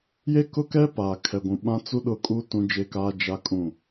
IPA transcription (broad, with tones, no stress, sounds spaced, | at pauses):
j e˦ k ʊ˦ k ɛ˦ p aː˨ kʰ ɛ˨ ɡʷ ũ˨ ɓ ã˦ t͡s u˦ ɗ ʊ˦˨ kʼ u˦ t ũ˦ d͡ʒ e˦ k aː˦ d͡ʒ a˦ kʼ ũ˦˨